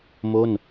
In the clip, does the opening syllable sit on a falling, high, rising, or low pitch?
falling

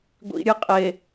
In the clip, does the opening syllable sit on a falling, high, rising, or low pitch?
low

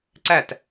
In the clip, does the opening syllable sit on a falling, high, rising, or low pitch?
falling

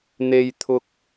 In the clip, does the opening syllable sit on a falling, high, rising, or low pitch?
low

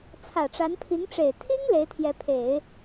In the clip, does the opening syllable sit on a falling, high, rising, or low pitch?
low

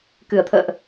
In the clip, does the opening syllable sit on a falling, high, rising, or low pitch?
low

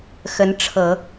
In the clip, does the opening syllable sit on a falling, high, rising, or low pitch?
rising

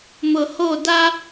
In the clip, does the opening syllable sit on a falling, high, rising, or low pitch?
low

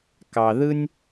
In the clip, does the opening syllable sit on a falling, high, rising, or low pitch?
low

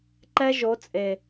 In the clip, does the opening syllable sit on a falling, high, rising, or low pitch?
high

